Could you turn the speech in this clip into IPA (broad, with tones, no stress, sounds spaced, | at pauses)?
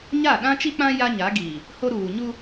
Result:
ɲ a˦˨ ɗ ã˦ t͡ʃ i˦ k͡p ã˦ j a˦ ɲ a˨˦ ɡ iː˨ | h o˦ ɾ uː˨ ɲ u˦